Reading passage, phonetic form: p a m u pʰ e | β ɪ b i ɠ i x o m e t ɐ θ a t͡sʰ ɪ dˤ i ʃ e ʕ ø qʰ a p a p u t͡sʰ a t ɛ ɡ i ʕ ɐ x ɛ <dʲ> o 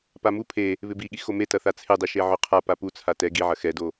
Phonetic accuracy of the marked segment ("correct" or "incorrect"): incorrect